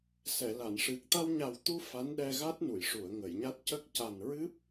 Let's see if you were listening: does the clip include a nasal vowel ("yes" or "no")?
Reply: no